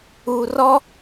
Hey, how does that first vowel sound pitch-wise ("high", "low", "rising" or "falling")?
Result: low